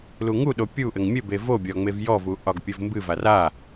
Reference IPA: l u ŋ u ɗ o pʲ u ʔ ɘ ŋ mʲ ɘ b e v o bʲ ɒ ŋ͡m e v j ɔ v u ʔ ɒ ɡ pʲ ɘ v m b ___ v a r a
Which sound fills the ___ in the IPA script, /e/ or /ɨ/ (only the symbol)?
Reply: ɨ